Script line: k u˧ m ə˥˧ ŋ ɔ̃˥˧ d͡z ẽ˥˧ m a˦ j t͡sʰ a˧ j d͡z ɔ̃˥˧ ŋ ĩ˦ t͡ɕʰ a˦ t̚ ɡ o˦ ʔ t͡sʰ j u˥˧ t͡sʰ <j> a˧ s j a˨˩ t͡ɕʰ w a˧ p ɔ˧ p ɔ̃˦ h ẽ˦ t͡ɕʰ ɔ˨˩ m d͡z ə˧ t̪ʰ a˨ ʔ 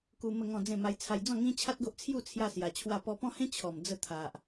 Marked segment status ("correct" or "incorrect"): correct